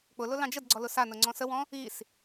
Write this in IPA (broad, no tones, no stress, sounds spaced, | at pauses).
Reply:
k͡p ʊ l ʊ l ɑ̃ d͡ʒ ə d ɡ͡ǀ ɔ l ʊ s a n ʊ ŋ͡ǀ ɔ̃ s ə w ɔ̃ | i s